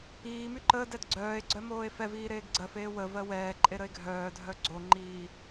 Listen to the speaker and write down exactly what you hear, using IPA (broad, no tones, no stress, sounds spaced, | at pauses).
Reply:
iː m y ǃ əː d ɛ d ɡ͡ǀ œː e̯ ɡ͡ǀ œ m oː e̯ f ɛ v iː ɾ eː ɡ ɡ͡ǀ ɜ f eː w ə v ɜ w ɛː ǃʼ e ɾ ə e̯ ɡʱ œː dʱ œ ɡ͡ǀ o ŋ͡ǃ iː